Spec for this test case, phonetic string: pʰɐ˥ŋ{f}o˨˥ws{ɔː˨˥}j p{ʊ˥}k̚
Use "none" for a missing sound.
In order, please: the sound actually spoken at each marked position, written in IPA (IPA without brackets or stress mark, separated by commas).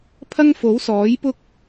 f, ɔː˨˥, ʊ˥